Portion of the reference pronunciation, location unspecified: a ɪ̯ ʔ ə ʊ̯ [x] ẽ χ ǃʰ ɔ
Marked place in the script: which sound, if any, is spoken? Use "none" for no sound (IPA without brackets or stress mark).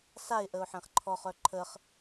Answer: ħ